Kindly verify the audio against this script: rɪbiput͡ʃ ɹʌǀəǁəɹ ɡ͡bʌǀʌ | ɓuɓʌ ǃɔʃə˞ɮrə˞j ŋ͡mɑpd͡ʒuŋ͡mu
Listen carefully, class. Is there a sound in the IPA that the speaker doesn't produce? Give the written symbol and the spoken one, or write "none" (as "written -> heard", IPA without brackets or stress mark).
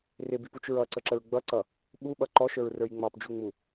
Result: ɮ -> ɹ